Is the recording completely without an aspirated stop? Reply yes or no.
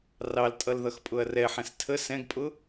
no